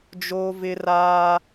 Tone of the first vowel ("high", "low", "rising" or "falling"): high